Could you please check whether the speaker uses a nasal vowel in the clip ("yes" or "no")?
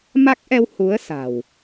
no